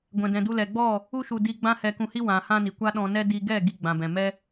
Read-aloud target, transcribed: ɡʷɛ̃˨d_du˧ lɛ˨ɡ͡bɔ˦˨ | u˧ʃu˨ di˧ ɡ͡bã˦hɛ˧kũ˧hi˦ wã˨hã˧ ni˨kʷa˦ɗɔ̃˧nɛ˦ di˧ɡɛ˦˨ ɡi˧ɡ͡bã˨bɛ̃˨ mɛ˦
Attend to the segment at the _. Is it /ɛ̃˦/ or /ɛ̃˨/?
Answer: ɛ̃˨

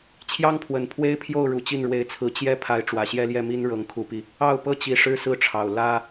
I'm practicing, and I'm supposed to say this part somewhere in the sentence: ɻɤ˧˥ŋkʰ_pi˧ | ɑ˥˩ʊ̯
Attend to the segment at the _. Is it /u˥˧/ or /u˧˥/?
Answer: u˧˥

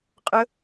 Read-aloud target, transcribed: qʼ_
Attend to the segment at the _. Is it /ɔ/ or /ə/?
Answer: ə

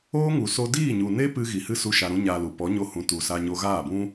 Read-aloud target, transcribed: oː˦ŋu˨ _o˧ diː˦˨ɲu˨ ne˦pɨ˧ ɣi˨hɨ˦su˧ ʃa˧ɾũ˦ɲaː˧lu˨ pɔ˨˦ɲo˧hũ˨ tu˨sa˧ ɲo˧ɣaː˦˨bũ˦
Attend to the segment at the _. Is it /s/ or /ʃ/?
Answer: s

